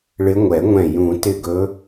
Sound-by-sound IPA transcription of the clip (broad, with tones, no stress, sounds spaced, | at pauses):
ɭ ɪ˨˦ ŋʷ ɛ˨˩˦ ŋʷ ɛ̃˧˩ j ũ˨˩˦ t ɪ˧˩ ɡ ɵ˨˦